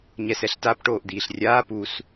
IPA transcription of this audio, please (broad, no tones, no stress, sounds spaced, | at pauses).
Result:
ɲ ɛ s ɛ ɬ t a p ʈ oː ʔ d̪ iː ɬ rʲ aː p u s